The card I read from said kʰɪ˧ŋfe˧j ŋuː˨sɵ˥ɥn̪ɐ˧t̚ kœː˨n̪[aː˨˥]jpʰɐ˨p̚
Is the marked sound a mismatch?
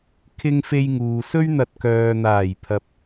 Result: yes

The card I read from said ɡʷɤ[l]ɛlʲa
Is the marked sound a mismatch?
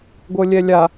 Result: yes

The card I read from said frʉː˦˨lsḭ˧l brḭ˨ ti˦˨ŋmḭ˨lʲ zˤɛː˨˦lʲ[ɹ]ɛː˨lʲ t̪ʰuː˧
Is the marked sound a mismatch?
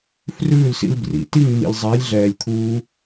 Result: yes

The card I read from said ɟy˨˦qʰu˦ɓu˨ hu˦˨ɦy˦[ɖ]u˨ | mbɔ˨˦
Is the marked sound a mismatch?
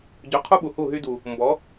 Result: yes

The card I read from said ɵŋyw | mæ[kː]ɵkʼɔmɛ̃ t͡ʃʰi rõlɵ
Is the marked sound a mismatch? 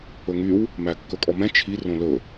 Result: no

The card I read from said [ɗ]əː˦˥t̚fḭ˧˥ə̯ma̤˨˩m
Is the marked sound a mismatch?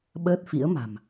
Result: yes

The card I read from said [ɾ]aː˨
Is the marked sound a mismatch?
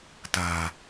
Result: yes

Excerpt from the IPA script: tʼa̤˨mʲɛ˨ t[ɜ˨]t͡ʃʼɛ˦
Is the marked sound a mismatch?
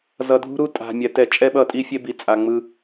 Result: yes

